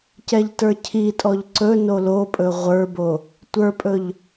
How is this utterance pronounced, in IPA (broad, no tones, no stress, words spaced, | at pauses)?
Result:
cɛʎtə˞cʰitʼɔʎ ǀɵ nolopʼɵ ʁʷə˞bo | tʷə˞pʼɵʎ